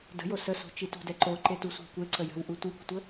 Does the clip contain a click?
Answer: yes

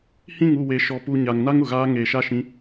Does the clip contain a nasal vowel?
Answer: yes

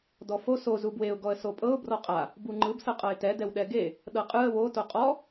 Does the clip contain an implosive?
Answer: yes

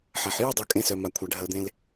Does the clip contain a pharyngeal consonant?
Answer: yes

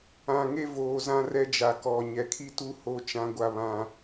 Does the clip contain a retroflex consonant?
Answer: no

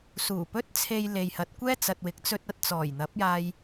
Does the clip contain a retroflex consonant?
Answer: no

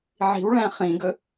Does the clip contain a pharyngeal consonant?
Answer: yes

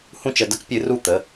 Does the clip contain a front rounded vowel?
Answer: no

